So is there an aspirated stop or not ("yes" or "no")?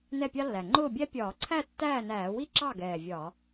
yes